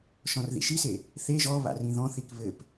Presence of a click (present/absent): absent